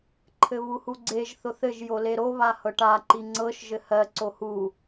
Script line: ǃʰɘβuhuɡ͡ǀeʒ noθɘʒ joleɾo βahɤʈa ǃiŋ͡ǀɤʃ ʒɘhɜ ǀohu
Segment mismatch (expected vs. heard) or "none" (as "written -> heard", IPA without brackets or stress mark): n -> θ